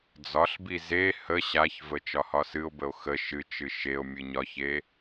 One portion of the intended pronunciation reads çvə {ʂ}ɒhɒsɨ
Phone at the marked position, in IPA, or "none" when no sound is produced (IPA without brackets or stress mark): t͡ʃ